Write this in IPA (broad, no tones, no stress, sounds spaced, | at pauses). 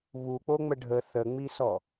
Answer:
β u k͡p o ŋ͡m ə ɖʱ ə θ ə ŋ͡m i s ɔ